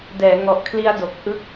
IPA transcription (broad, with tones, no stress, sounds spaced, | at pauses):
d ɛː˩˦ ŋ ɔ˨˩ ʔ kʰ l i˦˥ a̯ d o˨˩ k̚ ʔ ɯ˦˥ k̚